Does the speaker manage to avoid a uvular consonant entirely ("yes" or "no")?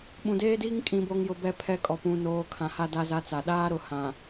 yes